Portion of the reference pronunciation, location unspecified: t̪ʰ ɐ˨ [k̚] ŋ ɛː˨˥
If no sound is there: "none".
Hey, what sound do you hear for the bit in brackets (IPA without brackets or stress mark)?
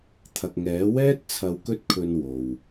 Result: k̚